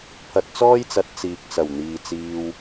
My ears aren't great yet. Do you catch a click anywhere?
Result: no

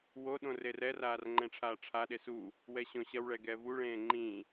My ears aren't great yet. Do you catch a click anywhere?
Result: yes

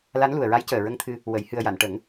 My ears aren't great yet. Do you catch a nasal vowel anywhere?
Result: no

